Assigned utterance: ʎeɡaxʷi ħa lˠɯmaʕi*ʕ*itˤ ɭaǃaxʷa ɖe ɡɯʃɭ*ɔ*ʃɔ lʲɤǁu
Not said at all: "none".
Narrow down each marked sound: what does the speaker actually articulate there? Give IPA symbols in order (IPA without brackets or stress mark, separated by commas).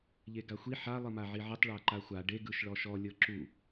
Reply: ʕ, ɔ